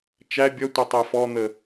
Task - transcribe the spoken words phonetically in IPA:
t͡ʃæ bʲʌtʷɛ tˤɛfɔn̪ə

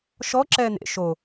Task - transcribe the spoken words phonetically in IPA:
ʃɔ ǁɛːn̪ḛ ʃo

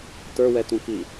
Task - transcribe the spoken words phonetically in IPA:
tə˞wɛtũki

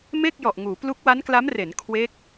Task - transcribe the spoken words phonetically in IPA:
me˥˩k̚jɔ˨˩ʔŋuː˩˦ plu˦˥k̚wa˦˥nkla˦˥m re˩˦n kʰwe˦˥k̚

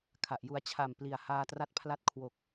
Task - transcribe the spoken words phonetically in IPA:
kʰa˨˩ʔju˧a̯ t͡ɕʰa˨˩mpli˨˩a̯ haː˧tra˦˥t̚pʰla˦˥t̚ kʰwo˨˩k̚

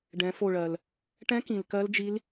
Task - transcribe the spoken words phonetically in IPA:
ɖɛ̃˩˧fo˧˩ɭɜ˩l | ʈɛ̃˧˥kĩ˩l kɜ˧˥ld͡ʒi˧˥l

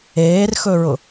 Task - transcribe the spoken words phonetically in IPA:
eːrxɵɹʊ

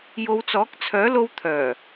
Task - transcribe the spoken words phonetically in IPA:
jo˨˧wt͡sɔː˨˥k̚t͡sʰœː˨˥lo˧w t̪ʰœː˨˩

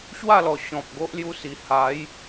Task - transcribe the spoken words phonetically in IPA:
ɕwa˥˧lɔ˨˩ ɕɔ̃˨p̚ ɡo˦ʔlju˧si˨˩ ha˨˦j

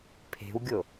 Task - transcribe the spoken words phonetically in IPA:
pʰe̤wɡʲo

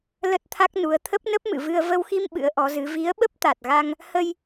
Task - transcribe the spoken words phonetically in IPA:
lə˦˥t̚t̪ʰa˦˥k̚ nu˨˦ə̯ t̪ʰə˦˥p̚nə˦˥p̚mɨ̰˧˨vɨ˧ə̯ və˧wxi˧m ɓɨ̰˧˥ə̯ʔɔ˨˦zɨ˨˦ vi˨˦ə̯ɓə˦˥p̚t̪a˨˩t̚ɣa˧ŋ | hə˧j

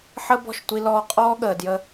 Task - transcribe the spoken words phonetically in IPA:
ħə˦ bɔ̤˦˨ʃtʷi˧ lɔː˧qʼɔː˦ɠəː˨ djə˧

